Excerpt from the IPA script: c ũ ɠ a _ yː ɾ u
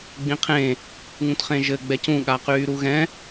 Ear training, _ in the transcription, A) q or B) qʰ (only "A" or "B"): A